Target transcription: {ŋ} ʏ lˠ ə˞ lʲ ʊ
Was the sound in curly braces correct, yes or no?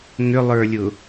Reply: yes